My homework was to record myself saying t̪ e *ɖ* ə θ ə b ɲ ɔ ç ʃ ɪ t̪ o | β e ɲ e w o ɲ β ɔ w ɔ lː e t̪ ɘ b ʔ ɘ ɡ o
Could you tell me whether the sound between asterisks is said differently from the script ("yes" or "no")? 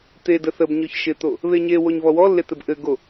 yes